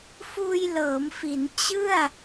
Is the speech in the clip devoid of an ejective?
yes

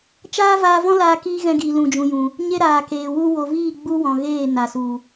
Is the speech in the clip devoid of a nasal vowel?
no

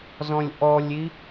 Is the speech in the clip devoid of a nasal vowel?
no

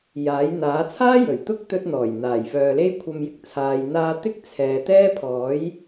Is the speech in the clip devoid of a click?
yes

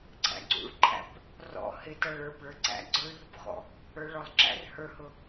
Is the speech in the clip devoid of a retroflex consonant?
no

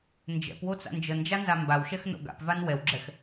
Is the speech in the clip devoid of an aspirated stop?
yes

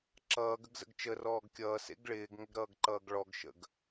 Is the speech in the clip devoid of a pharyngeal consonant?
yes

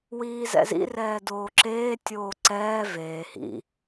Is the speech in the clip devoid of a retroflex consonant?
yes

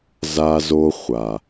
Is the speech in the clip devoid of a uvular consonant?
no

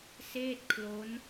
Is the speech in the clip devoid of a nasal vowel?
yes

